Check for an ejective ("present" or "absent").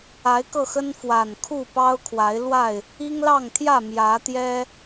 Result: absent